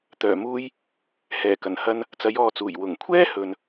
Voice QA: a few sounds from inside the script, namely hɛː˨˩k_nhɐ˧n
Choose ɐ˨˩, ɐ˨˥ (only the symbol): ɐ˨˩